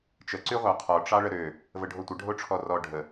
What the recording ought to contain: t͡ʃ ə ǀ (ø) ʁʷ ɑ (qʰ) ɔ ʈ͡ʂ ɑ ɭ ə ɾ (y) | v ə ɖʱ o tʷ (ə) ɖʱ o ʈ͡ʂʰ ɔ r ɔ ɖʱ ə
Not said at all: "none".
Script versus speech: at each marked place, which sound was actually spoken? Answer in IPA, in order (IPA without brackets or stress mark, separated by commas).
y, qʰ, ø, ə